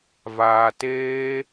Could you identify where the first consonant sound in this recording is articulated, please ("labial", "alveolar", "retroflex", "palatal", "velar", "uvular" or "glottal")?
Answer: labial